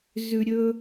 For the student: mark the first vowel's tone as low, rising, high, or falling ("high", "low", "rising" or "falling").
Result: low